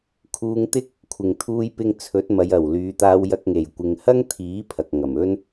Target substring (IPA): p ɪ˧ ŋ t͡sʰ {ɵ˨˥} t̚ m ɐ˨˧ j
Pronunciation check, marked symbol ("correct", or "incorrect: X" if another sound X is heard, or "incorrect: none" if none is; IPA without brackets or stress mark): correct